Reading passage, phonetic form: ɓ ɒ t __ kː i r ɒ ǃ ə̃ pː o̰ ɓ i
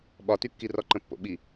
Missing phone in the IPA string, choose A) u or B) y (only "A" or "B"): B